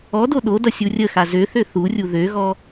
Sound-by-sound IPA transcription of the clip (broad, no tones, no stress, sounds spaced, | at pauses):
ɔ d o ɗ o d ʌ sʲ u rʲ ə x a z ø θ ø θ u rʲ u ð ø ɣ ɔ